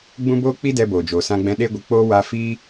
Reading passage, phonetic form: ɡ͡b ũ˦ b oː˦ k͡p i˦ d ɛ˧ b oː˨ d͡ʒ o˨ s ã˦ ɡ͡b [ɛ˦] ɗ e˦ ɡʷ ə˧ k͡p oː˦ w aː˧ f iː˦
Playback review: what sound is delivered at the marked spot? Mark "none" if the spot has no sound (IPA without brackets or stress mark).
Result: ɛ̃˦